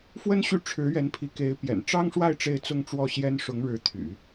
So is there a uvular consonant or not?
no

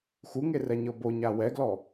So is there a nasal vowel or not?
no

